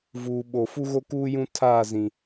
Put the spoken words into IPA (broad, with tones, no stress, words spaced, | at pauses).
vuː˨ɓo˨ fu˦ɣo˦kuː˦ jũ˦ tʰaː˦˨zĩ˨